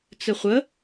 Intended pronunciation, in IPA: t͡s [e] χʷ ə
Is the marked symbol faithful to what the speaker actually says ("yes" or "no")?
no